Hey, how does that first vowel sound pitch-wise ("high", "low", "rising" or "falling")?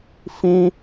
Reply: high